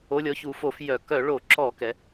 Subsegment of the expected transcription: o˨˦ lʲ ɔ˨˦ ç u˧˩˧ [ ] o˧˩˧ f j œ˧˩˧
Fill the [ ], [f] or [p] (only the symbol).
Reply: f